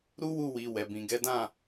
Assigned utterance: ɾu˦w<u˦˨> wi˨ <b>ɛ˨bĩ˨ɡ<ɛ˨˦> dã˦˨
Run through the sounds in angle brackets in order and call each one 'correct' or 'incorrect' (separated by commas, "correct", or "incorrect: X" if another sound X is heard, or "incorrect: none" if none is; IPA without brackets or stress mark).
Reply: correct, incorrect: w, correct